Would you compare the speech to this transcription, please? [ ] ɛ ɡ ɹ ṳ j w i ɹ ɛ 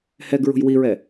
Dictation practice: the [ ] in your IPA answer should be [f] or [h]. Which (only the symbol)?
h